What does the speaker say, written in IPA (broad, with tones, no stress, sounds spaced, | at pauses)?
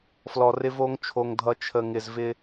f l ɔ˨ r ɪ˦ v o˦ ŋ t͡ʃʰ o˨ ŋ dʱ ʌ˨ t͡ʃʰ ə˨ ŋ ɪ˨ z v ɪ˦